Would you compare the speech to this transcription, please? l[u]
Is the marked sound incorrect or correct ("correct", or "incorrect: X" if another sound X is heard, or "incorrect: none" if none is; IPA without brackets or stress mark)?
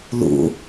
incorrect: ṵ